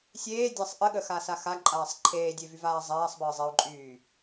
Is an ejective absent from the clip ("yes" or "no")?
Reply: no